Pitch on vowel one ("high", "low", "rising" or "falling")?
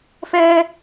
high